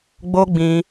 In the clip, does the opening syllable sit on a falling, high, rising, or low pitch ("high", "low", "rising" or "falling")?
high